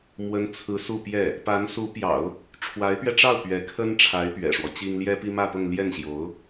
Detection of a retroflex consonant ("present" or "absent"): present